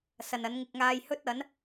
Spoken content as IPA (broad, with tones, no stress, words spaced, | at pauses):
sɐ˨nɐ˨˥nŋɪ˧k̚ ŋaː˧jhɵ˥t̚ɐ˨˥n